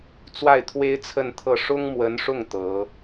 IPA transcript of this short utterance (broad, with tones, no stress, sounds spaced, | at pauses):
t͡s w a˥˩ ɪ̯ t̪ʰ w e˥ ɪ̯ t͡sʰ ə˥˧ n t̪ʰ ɤ˥˩ ʂ ʊ˥ ŋ m w ə˧˥ n ʂ ʊ˥˩ ŋ t̪ ɤ˧˥